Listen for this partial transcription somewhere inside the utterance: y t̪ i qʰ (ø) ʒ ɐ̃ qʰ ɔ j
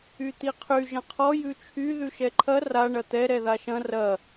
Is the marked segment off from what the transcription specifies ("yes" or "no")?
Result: yes